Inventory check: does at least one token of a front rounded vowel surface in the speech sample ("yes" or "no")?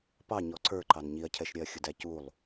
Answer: no